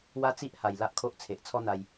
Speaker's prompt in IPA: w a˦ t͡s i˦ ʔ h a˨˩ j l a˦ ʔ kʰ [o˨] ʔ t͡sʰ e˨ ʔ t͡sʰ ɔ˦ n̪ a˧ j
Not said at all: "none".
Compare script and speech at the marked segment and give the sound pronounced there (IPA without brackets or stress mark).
o˦